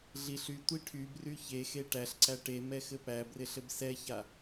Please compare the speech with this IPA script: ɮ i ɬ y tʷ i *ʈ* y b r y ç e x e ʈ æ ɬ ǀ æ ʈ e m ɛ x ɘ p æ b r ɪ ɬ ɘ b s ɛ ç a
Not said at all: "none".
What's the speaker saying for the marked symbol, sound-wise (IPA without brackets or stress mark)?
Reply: ʈʰ